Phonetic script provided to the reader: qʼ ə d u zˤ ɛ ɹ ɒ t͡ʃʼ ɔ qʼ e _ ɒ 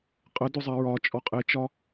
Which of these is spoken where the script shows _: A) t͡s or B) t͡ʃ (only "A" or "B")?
B